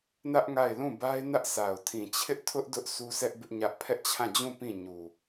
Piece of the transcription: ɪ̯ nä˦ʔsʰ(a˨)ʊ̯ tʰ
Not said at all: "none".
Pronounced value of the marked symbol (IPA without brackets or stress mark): a˨